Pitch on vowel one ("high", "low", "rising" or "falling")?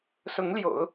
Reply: rising